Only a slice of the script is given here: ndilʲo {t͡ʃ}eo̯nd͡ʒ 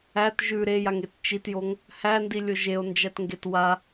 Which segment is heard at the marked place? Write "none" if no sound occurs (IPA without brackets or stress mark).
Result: ʒ